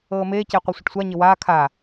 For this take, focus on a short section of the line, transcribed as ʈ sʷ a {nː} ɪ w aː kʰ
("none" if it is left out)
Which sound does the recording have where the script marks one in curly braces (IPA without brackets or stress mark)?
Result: ɲ